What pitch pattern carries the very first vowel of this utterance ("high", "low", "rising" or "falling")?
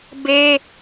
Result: high